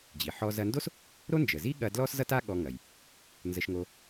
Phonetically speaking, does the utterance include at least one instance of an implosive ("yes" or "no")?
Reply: yes